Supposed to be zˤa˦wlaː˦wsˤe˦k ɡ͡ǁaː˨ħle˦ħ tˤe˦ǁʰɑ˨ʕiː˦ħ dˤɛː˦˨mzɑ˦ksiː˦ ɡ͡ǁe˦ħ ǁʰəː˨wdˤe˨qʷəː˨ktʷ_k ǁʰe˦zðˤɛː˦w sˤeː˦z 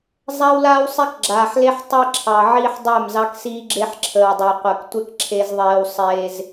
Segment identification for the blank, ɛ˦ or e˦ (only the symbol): ɛ˦